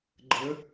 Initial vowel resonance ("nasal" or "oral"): oral